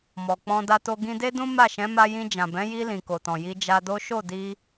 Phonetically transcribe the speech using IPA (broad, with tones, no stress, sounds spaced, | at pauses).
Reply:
m ɔ˨ k͡p ɔ̃˧ d a˧ t o˧ ɡ ĩ˧ d e˦ d ũ˦ m a˦˨ ʃ ɛ̃˨˦ m a˧ j ĩ˧ d͡ʒ ã˨ b ɛ̃˨˦ j i˧ l ĩ˨ k o˨ t ɔ̃˨ j i˧ d͡ʒ a˧ d o˦ ʃ o˦˨ d i˧